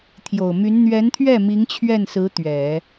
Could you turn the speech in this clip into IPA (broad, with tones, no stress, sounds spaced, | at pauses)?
t̪ʰ j o˨˩ ʊ̯ m y˧˥ n n̪ ɥ ɛ˧˥ n t̪ʰ ɥ ɛ˥˩ m i˧˥ ŋ t͡ɕʰ ɥ ɛ˥˩ n s ɹ̩˧˥ t̪ ɥ ɛ˨˩˦